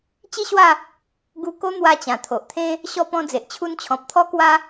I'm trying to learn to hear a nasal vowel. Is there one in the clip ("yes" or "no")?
yes